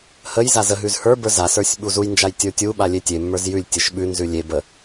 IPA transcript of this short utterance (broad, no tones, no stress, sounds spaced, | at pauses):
h ə j z a z ə ɦ ʉ z h ə˞ b ə˞ z a s ə˞ sʲ ɓ u z u j n d͡ʒ a j tʲ ə˞ tʲ u ɓ a lʲ e tʲ e mː ə˞ z j ʉ lʲ tʲ ɘ ʃ ɓ ʉ n z ʉ lʲ e b ə